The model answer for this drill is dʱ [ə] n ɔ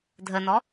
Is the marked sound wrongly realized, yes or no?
no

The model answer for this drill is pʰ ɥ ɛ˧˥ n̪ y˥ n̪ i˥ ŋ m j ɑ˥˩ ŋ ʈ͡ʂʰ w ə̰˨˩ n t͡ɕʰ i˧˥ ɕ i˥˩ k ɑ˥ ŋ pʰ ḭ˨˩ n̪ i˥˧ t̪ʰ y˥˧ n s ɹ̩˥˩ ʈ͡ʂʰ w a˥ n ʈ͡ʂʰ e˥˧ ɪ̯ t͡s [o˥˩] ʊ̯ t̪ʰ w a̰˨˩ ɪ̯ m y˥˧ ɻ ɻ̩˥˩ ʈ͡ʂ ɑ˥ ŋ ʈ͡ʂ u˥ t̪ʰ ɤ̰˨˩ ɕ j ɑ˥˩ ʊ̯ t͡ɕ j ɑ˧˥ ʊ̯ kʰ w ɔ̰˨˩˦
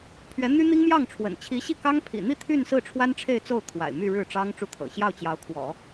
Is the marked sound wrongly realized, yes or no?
no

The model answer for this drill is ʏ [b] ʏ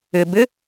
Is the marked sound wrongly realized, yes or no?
no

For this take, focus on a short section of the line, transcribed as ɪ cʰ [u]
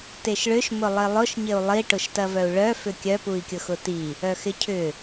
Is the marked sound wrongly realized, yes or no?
yes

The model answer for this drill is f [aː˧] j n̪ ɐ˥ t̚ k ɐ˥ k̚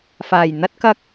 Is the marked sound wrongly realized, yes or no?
yes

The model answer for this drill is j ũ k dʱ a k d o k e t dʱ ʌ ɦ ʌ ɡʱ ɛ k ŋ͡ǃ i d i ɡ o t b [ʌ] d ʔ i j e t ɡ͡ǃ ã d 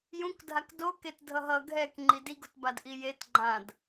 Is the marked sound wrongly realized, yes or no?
yes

